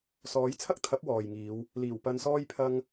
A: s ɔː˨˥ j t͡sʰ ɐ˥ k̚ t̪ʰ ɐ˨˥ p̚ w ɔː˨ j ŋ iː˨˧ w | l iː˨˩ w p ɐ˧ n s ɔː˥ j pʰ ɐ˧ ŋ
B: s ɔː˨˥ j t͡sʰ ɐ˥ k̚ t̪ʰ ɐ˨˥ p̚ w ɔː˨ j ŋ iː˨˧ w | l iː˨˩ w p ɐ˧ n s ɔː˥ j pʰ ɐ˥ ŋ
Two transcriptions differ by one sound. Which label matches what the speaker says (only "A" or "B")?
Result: A